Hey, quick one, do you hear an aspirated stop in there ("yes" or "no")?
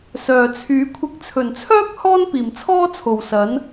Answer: yes